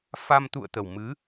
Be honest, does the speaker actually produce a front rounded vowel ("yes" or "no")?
no